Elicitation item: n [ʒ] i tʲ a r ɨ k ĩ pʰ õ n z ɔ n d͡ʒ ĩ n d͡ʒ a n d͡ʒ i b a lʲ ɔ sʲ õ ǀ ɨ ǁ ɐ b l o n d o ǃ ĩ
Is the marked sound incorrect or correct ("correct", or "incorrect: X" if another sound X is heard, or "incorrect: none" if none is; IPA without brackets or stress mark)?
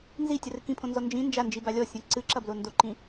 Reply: incorrect: z